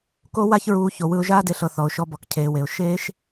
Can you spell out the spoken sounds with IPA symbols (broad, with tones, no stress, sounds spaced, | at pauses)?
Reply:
k o˦ w a˦ ç ɹ uː˧ ç o˨ w ɯ˧ ʊ̯ ʒ aː˦ d e˧ ɬ ɤ˨ θ ɔ˨ ʊ̯ ʃ ɔ˧ b ɔ˨ k cʰ eː˨ w e˨ ʊ̯ ʃ eː˦ ʃ